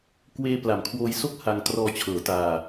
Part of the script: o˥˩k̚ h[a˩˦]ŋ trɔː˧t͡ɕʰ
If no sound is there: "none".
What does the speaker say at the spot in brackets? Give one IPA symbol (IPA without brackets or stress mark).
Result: a˧